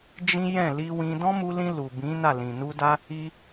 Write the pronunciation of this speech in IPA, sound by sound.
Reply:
d͡ʒ ĩ˦ j ɛ̃˦˨ l i˧ w ĩ˧ d ɔ̃˦ m u˧ l ĩ˧ l u˨ b ĩ˨˦ n a˦˨ l ĩ˨ n u˧ d a˦ | i˧

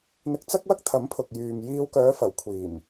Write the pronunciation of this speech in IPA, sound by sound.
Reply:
n̪ ɪ˧ k̚ t͡s ɐ˥ k̚ w ɐ˥ k̚ t̪ʰ ɐ˨˥ m pʰ ʊ˨ k̚ j yː˨ m j iː˧ w k œː˨˧ f ɐ˨˩ w kʷʰ iː˨˩ m

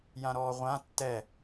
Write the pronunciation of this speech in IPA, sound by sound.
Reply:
j ã ɾ ɔː ʁʷ ã tː ɛ

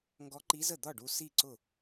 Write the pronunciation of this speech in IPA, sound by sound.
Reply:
ŋ ɡ ɔ˧˥ ǃ i˧˥ z ə˥˩ d̪ ɒ˥˩ ɖ u˧ s i˥˩ ǀ ʊ˥˩

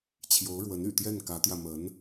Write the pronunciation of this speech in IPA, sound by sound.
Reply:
t͡ɕʰ j o˧˥ ʊ̯ ɻ w ə˧˥ n y̰˨˩ t̪ j ɛ˥˩ n k ä˧˥ t̪ j ä˧ m ə˧˥ n

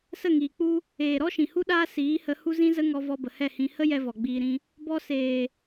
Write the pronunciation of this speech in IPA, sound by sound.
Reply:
s ə˦˨ ŋ iː˨ k͡p u˧ | eː˨ ɾ ɔ˦ ʃ ĩ˨ h u˦ ɗ aː˦ s iː˨˦ h ə˧ h u˦ z ĩ˦ z ə˦ ŋ ɔ˧ v ɔ˧ b ə˨ h ɛ˦˨ h ĩ˧ h ə˦ j ɛ˦ v ɔ˨ ɡ͡b iː˧ ɾ ĩ˦ | b ɔ˧ s eː˨

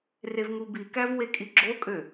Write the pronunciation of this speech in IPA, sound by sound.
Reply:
r e v ŋ u b i k æ v w e kʼ i ɡ͡ǁ o kʼ ø

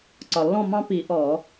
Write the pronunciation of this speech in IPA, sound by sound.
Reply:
ǀ ɒ˨˩ lː ɔ̃˥˨ m ɑ̃˦ p i˧˩˧ ʔ ɔ˧˩˧

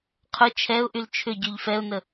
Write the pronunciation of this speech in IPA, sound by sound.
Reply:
qʰ ʊ t͡ʃʰ ɛ ʊ̯ ʔ y l t͡ʃʰ ʏ ɟ y ʎ f ɛ ʊ̯ n ə

